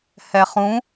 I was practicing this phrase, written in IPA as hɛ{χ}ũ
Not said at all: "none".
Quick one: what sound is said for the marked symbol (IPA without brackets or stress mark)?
χ